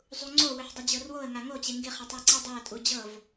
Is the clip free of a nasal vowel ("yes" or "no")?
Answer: yes